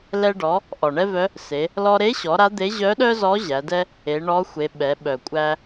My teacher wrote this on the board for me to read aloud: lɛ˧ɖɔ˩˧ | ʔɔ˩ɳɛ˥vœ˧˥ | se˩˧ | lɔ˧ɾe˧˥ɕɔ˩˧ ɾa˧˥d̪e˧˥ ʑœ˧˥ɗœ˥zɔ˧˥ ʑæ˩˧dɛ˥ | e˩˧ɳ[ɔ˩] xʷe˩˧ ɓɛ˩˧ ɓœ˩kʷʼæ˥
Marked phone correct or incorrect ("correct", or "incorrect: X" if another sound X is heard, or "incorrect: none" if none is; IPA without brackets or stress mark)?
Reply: incorrect: ɔ˧˥